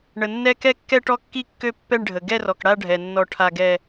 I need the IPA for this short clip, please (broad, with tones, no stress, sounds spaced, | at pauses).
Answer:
ɳ ə˨ nː ɛ˥˧ k ɛ˥˧ kː ɛ˥˧ ʈ ɔ˥˧ kː i˥˧ kː ø˥˧ pː ɛ˥˧ ɳ ɖʱ ə˨ ɡ ɛ˥˧ r ɔ˨ k ɽ a˥˧ ɖʱ ɛ˨ nː ɔ˥˧ ʈʰ a˥˧ ɡ ɛ˥˧